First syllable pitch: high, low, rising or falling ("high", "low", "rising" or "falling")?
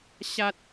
high